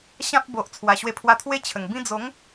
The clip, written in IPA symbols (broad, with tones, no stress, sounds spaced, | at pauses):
ɕ ã˦ p̚ b o˨ ʔ t͡sʰ w a˨˩ ɕ w e˧ pʰ w a˧ t̪ʰ w e˦ t͡ɕʰ ə˨˩ ŋ b ĩ˦ d͡z o˨˦ ŋ